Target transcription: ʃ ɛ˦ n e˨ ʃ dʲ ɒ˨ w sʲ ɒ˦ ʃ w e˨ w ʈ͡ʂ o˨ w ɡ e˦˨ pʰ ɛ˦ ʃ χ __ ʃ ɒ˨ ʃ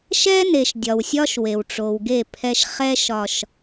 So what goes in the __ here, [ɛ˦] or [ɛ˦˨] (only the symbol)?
ɛ˦